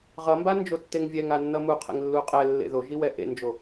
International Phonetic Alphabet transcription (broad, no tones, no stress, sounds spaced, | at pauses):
ʁ ʌ m b a n d͡ʒ o tː e ŋ vʲ ɛ ŋ a nː ʌ m u qʰ ḛ ŋ lː u qʼ ɛ lː ḛ ð o ʒ i w ɛ ʔ ḛ n d͡ʒ o